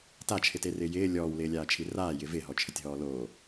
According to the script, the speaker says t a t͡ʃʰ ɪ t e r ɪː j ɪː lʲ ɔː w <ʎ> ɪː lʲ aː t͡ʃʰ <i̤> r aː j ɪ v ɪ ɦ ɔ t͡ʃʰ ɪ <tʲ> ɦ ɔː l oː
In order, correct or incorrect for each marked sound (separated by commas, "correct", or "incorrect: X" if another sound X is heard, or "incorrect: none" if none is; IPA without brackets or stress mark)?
incorrect: l, incorrect: i, correct